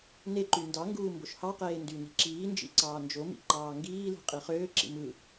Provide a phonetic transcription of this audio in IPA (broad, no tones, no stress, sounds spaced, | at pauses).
n e ǃ y n d ɑ ŋ ɡ uː m b o ʃ h ɑ q eː n d y n i̤ ǁ iː n d͡ʒ ḭ ǀ ɑː n d͡ʒ o m ḭ ǃ ɑː ŋ ɡ iː l i̤ qʼ i χ øː ǁ ḭ m ɯ